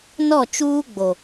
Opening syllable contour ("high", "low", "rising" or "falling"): falling